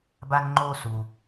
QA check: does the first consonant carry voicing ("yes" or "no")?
yes